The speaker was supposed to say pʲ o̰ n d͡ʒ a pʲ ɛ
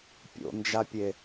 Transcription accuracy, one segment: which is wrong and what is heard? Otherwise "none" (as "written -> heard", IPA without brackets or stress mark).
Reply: ɛ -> e